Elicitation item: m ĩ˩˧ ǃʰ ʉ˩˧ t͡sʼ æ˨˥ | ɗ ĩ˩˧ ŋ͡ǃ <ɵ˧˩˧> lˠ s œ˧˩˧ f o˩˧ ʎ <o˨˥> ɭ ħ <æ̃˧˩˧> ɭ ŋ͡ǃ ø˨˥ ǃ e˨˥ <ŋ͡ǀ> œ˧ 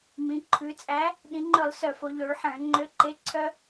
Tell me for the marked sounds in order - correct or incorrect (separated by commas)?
correct, incorrect, correct, incorrect